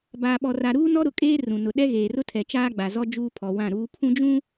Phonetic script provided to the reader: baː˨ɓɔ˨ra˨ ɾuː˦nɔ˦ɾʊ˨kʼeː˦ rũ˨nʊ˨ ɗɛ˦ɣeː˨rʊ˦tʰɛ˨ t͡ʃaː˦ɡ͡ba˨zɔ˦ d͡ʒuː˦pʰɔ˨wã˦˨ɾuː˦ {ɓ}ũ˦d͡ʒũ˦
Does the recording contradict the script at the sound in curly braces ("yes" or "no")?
yes